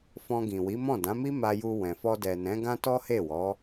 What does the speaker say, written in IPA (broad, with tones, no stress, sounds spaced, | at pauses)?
f ɔ̃˧ ɡ ĩ˨ w i˨˦ m ɔ̃˦˨ d ã˨˦ m i˦ m a˧ j u˧ w ɛ̃˨ f ɔ˧ d ɛ˨ n ɛ̃˨˦ ɡ ã˦ t ɔ˦ h e˦˨ w ɔ˨˦